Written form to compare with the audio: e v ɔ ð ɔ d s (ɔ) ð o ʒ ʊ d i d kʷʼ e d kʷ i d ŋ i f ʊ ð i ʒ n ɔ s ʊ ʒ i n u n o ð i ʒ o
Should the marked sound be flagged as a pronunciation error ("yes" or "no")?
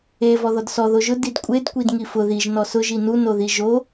no